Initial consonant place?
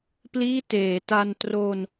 labial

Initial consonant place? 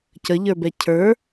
palatal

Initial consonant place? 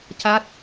palatal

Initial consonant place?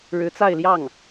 retroflex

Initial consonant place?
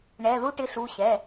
retroflex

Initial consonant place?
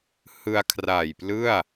glottal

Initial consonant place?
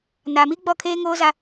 alveolar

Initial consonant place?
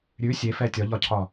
alveolar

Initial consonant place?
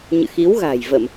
palatal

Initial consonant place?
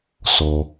alveolar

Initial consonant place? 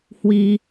glottal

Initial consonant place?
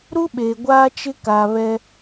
alveolar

